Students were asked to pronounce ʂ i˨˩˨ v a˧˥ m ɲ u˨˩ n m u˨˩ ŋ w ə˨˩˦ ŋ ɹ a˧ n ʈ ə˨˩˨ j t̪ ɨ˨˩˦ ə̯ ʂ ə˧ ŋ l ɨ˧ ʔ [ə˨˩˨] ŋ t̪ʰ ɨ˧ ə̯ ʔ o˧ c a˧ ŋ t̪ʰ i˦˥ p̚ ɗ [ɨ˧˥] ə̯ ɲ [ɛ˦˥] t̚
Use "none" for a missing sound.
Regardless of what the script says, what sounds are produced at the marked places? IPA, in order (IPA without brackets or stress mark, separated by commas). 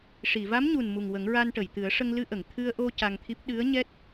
ə˨˩˨, ɨ˧˥, ɛ˦˥